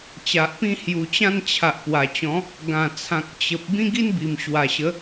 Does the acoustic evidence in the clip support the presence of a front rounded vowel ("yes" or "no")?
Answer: no